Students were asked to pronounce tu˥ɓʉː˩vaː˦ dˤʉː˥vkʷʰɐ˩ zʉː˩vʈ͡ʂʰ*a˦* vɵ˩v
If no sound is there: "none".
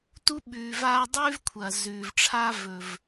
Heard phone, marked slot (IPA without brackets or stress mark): a˦